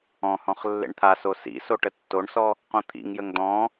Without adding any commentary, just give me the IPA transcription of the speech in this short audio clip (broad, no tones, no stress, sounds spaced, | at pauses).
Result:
ɔ̃ h ɔ̃ χ lː ḛ ɳ t̪ʰ a s o s ḭ s o ʈ ə tː o ɳ s ɔ | q õ t̪ʰ ḭ ŋ j ə ŋ d̪ ɔ̃